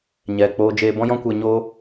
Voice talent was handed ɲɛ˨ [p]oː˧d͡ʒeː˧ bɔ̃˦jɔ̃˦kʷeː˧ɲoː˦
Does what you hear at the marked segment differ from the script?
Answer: yes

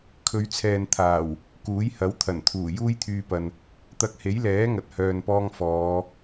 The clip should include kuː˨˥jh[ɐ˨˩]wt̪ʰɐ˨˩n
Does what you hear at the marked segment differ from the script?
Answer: yes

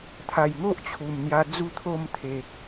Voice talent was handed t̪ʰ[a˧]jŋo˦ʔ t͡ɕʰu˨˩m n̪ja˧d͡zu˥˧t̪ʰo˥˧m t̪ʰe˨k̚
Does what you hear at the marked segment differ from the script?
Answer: yes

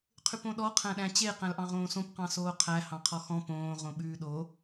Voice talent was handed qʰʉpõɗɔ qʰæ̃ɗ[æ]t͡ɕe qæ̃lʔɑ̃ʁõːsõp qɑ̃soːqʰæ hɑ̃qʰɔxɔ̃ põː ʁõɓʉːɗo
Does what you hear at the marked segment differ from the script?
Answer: yes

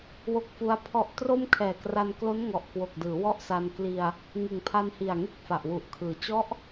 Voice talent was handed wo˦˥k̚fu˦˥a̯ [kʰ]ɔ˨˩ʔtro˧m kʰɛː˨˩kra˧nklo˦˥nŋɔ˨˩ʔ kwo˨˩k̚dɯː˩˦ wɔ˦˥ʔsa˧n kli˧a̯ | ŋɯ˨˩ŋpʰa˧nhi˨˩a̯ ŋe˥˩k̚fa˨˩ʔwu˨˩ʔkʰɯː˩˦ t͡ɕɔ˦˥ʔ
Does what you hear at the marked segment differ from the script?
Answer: yes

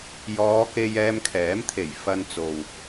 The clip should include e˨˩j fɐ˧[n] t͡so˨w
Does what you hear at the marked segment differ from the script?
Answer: no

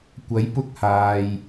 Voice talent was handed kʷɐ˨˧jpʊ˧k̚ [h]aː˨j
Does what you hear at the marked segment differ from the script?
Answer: no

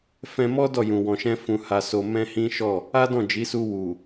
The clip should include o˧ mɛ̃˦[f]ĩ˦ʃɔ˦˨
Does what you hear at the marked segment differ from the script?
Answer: yes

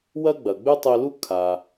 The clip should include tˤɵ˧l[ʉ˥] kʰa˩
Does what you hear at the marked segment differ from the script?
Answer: yes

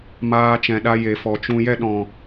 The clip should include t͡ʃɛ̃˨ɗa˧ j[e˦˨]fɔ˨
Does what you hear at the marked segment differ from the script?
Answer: yes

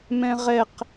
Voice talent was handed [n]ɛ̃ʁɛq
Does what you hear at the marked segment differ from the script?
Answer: yes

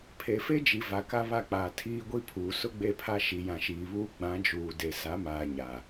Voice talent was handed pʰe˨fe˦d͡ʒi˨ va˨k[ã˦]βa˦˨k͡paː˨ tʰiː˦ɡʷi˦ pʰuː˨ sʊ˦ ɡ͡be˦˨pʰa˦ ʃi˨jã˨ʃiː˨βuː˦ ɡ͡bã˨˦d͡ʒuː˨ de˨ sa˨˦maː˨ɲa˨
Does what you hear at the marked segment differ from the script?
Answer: yes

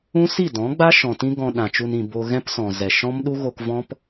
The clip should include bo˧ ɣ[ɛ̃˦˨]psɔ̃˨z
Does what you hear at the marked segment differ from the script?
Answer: yes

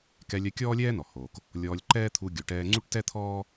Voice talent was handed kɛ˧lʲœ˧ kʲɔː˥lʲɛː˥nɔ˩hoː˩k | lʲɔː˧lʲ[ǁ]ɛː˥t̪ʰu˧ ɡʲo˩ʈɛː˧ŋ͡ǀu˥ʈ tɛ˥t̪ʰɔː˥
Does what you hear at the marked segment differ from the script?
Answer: yes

